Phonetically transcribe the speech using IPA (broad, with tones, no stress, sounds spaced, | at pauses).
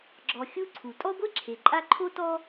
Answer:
ɡ͡ǁ ɔ˨ xʲ u˦ ǀʰ u˩ tʼ ɔ˥ ɡʷ e˦ ǁʰ e˩ ǃʼ a˦ ǃʰ o˥ t ɔ˥